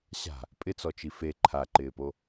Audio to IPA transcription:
ɕ a̤ | pʼ ɪ t͡s ɔ t͡ʃ i f e ǃʰ a ǃ ɪː p o

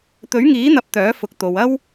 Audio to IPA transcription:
t̪ ɵ˨˥ ɥ ŋ iː˨˥ n̪ ɐ˨˥ p̚ t̪ œː˨˥ f ʊ˨˥ k̚ t̪ o˨ w ɐ˥ w

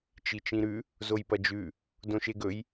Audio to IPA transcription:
t͡ʃ i t͡ʃ ĩ ɾ ʉ | z o j p ɐ d͡ʒ ʉ | d õ ʃ e ɡ ɵ j

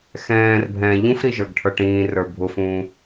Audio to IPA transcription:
x ɛ̃ː r bʱ ɛ̃ː ʎ ũ f ɾ i ʒ ə˞ ɡ ʈʰ ə˞ ʈ ĩː r ə˞ bʱ ʊ f ũː

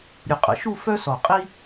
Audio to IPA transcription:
ɾʲ ʊ˧˩ qʼ ə̰˩˧ ʃ u˥˧ f œ˥ s ɔ˧˩ qʼ i˥

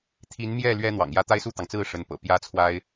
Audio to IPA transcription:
t̪ʰ i˧˥ n m j ɛ˥˩ l ɥ ɛ˥ n̪ w ɑ̰˨˩ ŋ j ä˥˧ t̪ a˥˧ ɪ̯ s u˥˩ t̪ ɑ˩ ŋ t͡s ɹ̩˥˩ ʂ ə˧˥ n p ɤ̰˨˩ p j ä˥ t͡sʰ w a˥ ɪ̯

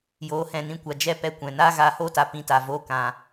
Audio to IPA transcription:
j oː˨˦ h ɛ̃˨ n ĩ˧ kʷ a˨ d͡ʒ ɛ˦ p ɛ˧ kʷ ɛ̃˨ n aː˦ ɣ aː˧ h oː˦ t a˨ p ĩ˧ t a˨ v oː˦ k ã˨

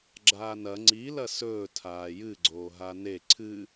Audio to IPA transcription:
ɡ͡ǁ aː n ɐ ŋ͡ǀ i l ɐ s ɵː tʰ aː j ɨ ɡ͡ǀ oː ɦ a n e ǀʰ ɨ

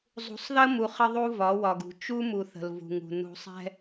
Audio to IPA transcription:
zˤ ṳ˨ sˤ ð ə˦ m u˨ χ ə˦ ðˤ u˦ v ɒ˨˦ w ɒ˨ ɡ ṳ˨ t͡ʃ u˦ m u˨ θ ə̤˨ l v ṳ˨ ŋ ṳ˨ n ṳ˨ sˤ ɛ̤˦

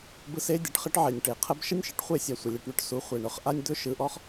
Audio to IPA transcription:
b ɯ˦ s e˦ dʲ ɘ˨ ʈ χ ɘ˦ ʈ ʕ e˨ nʲ ʈ e˨ qʰ ə˦ b ʃ ə˦ nʲ ʃ ɘ˨ ʈ χʷ e˦˨ sʲ a˨ sʷ ə˨ lʲ e˧ ʈ ɳ ɵ˦ ʈ s u˨˦ χʷ e˨ ɳ ɵ˧ χ ʔ a˦ nʲ d̪ ɵ˦ ʃ ɯ˨˦ ʔ ɔ˦ χ

